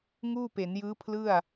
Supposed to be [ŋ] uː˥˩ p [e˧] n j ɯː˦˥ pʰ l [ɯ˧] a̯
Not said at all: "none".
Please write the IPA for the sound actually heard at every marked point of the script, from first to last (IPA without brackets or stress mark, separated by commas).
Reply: ŋ, e˩˦, ɯ˥˩